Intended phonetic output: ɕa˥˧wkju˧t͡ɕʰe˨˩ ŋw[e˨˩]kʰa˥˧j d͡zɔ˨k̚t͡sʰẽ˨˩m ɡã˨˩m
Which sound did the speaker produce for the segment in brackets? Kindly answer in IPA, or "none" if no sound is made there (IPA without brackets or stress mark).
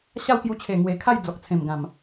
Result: e˨˩